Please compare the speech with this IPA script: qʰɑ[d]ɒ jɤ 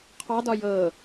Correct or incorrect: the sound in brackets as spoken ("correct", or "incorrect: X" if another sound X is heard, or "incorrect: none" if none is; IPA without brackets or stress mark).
correct